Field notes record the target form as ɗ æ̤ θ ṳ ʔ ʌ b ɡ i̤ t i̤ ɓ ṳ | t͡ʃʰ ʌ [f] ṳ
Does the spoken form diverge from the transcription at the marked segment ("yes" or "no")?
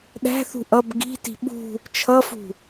no